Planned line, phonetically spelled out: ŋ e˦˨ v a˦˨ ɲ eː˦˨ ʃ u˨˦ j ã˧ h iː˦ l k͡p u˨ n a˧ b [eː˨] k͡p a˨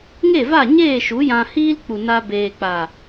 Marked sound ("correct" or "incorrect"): correct